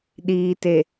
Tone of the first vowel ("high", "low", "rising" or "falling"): low